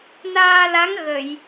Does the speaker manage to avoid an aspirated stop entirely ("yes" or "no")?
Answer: yes